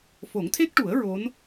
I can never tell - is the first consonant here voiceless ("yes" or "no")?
yes